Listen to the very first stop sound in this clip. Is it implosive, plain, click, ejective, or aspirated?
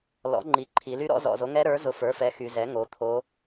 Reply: click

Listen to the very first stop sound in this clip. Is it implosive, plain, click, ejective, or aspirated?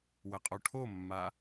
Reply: ejective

